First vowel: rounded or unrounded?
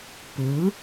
unrounded